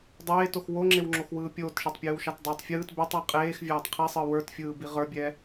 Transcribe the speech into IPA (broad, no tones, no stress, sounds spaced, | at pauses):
dˤ eː t o x w o ŋ͡ǁ e w ŋ͡ǁ o x w ɯː pʲ oː t ʃ e tˤ pʲ ɯː w ʃ ɑ t dˤ eː tˤ fʲ ɯː t b ɛ tˤ ɑ qʼ eː x vʲ aː tˤ qʰ i sˤ ɯ w ə˞ t fʲ ɯː b i ʁ ə˞ bʲ ɛ